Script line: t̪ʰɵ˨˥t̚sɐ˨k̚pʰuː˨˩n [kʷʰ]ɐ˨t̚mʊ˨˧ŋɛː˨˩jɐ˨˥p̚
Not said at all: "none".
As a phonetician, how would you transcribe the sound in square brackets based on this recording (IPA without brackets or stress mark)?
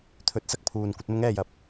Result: kʷ